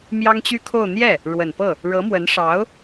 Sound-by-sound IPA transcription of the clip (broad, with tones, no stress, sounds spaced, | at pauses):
m j ɑ˥ ŋ t͡ɕ y˥ kʰ o˥˧ ʊ̯ n̪ j ɛ˥˩ | ɻ w ə˨˩ n p ɤ˥˩ | ɻ ɤ˧˥ m w ə˧˥ n ʂ ɑ˧˥ ʊ̯